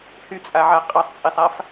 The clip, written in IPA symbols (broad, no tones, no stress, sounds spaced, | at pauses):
h y t͡sʼ a ʕ a qʼ ɑ sˤ t͡sʼ i sˤ a f